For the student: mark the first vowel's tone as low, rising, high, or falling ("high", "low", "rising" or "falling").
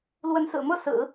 rising